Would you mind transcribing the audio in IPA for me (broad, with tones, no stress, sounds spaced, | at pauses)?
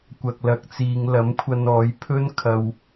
kʷ ɐ˨ k̚ l ɐ˨ k̚ t͡s iː˨˧ ŋ l ɐ˨˥ m kʷʰ ɐ˧ n ɔː˨˥ j pʰ ɵ˥ n kʰ ɐ˨ w